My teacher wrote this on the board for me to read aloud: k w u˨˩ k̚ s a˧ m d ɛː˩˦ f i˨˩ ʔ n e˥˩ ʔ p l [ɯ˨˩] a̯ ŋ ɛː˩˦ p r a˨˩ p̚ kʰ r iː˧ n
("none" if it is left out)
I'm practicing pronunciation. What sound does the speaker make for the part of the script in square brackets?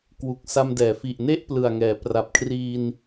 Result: ɯ˨˩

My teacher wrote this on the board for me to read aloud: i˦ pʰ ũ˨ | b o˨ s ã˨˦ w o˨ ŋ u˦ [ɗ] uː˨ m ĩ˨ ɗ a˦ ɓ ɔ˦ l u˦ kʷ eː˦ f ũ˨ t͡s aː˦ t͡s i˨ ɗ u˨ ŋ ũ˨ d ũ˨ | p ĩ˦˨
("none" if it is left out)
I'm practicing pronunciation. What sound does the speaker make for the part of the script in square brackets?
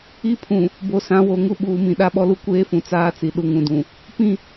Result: ɓ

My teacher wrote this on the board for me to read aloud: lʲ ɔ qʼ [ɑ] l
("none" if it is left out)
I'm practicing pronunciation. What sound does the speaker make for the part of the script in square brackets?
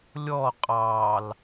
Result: ɑ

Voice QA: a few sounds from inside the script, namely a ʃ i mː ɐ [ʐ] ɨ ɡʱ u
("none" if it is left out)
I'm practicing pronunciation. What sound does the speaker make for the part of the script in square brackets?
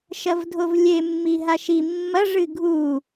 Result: ʐ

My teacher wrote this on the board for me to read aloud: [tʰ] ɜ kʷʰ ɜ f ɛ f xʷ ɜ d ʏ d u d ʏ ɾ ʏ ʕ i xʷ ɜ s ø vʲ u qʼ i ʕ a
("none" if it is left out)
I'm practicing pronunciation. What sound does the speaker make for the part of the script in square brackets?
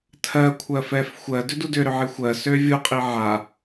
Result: tʰ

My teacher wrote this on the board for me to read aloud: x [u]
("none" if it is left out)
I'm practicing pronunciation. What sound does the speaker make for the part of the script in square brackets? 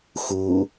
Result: u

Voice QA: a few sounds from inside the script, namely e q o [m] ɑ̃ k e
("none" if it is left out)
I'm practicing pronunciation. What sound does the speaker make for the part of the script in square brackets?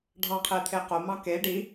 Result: m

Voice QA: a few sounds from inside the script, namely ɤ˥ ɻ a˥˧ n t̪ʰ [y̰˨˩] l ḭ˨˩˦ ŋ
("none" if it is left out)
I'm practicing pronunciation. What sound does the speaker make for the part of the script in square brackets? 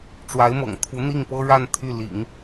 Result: y˥˩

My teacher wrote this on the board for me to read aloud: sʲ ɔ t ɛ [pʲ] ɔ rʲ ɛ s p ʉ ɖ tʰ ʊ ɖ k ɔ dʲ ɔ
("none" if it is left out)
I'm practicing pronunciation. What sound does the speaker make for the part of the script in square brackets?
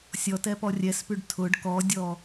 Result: p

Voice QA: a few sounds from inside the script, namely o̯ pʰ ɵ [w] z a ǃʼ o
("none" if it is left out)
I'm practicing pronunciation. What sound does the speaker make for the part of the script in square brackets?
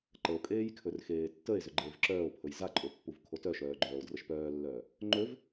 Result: j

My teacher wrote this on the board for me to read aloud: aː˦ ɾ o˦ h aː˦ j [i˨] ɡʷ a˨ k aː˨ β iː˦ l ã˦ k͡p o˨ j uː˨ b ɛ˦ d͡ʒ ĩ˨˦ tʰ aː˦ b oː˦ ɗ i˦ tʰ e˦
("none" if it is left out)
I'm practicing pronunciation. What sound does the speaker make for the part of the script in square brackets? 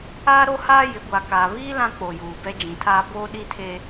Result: ɪ˨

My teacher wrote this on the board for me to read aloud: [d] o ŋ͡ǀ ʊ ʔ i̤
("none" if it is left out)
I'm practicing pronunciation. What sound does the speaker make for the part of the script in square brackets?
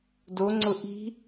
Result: d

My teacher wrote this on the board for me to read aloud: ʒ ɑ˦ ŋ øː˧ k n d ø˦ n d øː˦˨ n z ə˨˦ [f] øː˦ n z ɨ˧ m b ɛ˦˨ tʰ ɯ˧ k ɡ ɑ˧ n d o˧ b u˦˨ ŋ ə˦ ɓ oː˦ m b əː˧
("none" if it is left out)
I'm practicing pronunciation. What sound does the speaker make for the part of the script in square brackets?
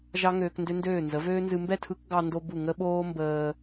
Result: v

